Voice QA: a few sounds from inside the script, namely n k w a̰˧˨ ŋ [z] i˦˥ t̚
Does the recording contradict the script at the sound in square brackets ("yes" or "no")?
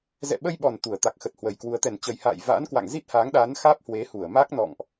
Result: no